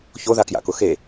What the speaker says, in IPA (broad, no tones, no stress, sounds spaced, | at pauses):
ç o ð a k j a̰ k ʊ x e